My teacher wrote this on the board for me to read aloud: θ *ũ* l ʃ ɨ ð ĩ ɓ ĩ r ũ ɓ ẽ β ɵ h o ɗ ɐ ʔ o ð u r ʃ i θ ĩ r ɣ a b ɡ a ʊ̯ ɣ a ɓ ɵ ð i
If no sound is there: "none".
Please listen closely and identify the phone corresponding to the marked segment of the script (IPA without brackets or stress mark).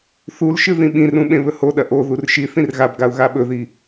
u